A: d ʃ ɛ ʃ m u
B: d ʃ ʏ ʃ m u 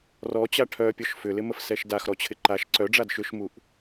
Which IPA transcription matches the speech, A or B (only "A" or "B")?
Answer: B